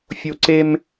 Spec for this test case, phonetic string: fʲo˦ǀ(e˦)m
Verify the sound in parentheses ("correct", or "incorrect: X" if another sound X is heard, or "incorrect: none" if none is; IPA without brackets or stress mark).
correct